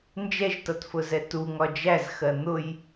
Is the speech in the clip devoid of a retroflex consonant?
yes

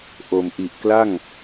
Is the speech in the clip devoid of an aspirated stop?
yes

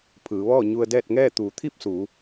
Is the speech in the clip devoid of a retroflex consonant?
yes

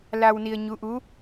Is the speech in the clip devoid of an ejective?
yes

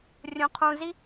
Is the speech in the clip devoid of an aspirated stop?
no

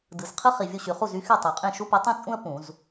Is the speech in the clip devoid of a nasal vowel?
no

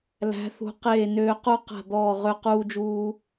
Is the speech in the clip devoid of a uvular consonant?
no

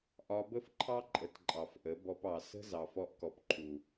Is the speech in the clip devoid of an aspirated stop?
no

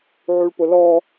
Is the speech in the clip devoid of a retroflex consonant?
no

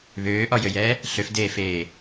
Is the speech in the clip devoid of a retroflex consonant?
yes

